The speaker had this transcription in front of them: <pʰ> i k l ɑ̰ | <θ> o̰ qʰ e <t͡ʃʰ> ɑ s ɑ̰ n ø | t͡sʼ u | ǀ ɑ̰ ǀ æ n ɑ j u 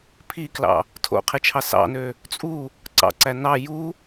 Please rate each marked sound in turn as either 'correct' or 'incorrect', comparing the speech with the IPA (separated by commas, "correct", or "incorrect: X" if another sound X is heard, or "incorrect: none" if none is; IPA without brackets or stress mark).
correct, incorrect: tʰ, correct